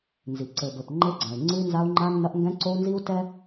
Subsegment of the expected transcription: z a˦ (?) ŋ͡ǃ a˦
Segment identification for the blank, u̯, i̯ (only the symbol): u̯